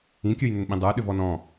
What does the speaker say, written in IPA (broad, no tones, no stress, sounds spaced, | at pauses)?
ĩ kʲ ə˞ j n ʏ n ɓ ĩ dˤ ə˞ ɗ ʏ v ɔ n ɔ̃